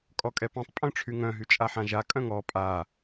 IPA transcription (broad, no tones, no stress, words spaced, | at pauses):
kʼɔkʼɛpãtˤ pʼœ̃ʈ͡ʂʰyŋœ̃ ɦyt͡ʃʼaħãʒa kʼœ̃ŋɔ pʼa